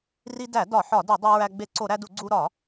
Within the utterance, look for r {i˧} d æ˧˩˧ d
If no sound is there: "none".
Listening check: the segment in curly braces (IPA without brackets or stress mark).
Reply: i˧